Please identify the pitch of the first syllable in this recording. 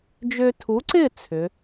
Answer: high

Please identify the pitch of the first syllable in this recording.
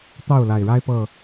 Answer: falling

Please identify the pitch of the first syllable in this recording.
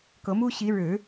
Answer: rising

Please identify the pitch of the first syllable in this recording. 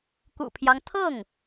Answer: low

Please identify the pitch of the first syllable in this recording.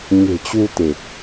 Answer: low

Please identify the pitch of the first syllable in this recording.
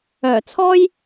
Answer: low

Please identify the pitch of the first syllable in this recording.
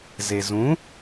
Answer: low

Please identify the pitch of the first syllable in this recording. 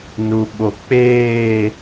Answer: low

